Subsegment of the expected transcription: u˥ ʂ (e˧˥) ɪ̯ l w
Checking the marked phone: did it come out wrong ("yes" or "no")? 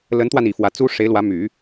no